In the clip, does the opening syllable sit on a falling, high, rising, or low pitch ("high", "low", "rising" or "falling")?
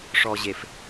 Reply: low